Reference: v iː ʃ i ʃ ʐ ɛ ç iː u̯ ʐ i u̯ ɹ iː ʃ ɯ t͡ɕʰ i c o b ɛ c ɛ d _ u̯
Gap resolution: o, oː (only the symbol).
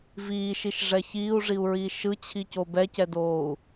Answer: oː